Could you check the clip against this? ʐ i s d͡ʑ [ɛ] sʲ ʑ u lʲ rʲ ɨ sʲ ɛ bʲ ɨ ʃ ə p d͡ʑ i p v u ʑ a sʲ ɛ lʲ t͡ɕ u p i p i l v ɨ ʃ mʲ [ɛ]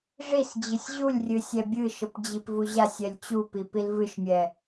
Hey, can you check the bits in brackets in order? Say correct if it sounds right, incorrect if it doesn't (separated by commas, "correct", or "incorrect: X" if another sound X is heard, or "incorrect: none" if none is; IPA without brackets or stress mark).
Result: incorrect: ɨ, correct